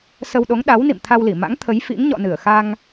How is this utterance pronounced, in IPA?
s ə˧ w ɗ o˨˦ ŋ ɗ a˨˦ w n ḭ˧˨ m t̪ʰ a˧ w l i˧˩ m a̰˧˥ ŋ t̪ʰ ə˨˦ j f ḭ˧˥ ŋ ɲ ɔ̰˧˨ n ɨ˧˩ ə̯ x a˧ ŋ

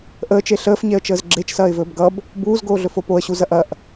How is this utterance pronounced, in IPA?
ʔ əː t͡ʃ e ɬ əː f ɲ e ə̯ t͡ʃ əː z ɡ͡ǁ e t͡ʃ s ɐː ɪ̯ v ɵː b ɡ ʌ b | b uː z ɡ oː ɮ ɵ f o p o ə̯ ɕ u z ɐ ʔ ɐ ʔ

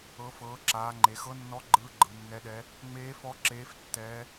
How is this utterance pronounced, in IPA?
ɤ˩˧ f ɤː˩˧ ǁ aː˩˧ ŋ͡ǃ e˩˧ x ɤ˧˥ nː ɔ˧˥ ɡ͡ǃ ɯː˧˥ ɡ͡ǃ ɯ˩˧ nː ɛ˧˥ ɗ ɛ˧˥ | ŋ͡m eː˧˥ f ɔ˧˥ ǁ eː˧˥ f tː ɛː˧˥

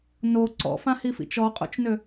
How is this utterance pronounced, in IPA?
n o ǀ ɔ̰ f ã h i f ḭ t͡ʃ ɔ qʼ o̰ t͡ʃ n ø

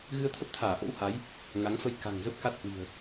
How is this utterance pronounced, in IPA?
ɣ ɨ˧ ə̯ t̪ʰ ə˦˥ p̚ t̪ʰ aː˧˩ ʔ o̰˧˥ w h a˨˦ j | ŋ a˨˦ ŋ f ə˧ j k a̤˨˩ ŋ z ə˦˥ p̚ k a˦˥ t̚ h w i̤˨˩ ə̯

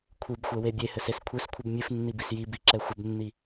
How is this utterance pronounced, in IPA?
kʷʰ ɨ b xʷ ɛ w e bʲ e h ɘ s e s kʷʰ e s kʷʰ ɨ b mʲ ɨ f nː i b i s j i b i ǁ ɛ xʷ ɘ b nː i

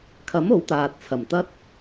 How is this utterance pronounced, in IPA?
kʰ ɐ˨˥ m o˨˥ w t̪ aː˨ t̚ t͡sʰ ɐ˨˩ m t̪ ɐ˥ t̚

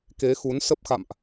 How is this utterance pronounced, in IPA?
k e˨˦ x u˨˦ n s ə˦˥ p̚ x a̰˧˨ m ʔ

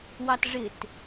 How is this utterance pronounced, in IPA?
w ɑ t ʐ ɪ t

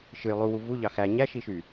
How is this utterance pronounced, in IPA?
ʃ ɯ j lˠ u w u v u ʎ ɑ x æ ɲ æ ʃ i ʃ y

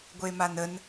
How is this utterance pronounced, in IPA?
ɡʷ e m a n ə n

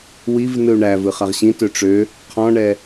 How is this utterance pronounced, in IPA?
w i v n ɯ u̯ ɳ æ v ɯ χ a ʁ ɕ ĩ t ø ʈ͡ʂ ø | qʰ ɔ̃ ɳ ɛ

